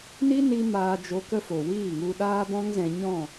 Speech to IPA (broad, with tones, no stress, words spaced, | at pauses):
ni˦ni˧ maː˧d͡ʒo˧kə˦ fo˨wiː˦˨ŋu˧ ɗaː˦bɔ̃˦ŋzɛ̃˧ɲɔ̃˦˨